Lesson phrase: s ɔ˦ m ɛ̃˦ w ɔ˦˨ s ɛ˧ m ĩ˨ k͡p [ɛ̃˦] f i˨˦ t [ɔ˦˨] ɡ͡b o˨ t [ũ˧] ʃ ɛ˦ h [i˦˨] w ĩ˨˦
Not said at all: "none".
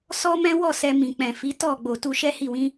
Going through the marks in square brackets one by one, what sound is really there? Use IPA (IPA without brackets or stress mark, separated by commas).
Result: ɛ̃˨, ɔ˦˨, u˧, i˦˨